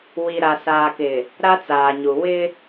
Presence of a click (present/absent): absent